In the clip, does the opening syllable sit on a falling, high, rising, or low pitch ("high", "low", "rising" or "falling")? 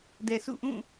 low